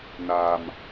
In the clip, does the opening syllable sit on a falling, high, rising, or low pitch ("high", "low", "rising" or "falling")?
low